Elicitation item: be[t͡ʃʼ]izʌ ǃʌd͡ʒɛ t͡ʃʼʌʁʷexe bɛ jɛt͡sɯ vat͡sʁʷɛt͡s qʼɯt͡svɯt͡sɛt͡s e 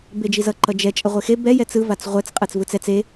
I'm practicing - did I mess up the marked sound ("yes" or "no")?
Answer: yes